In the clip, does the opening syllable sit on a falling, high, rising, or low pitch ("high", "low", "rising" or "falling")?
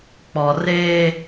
low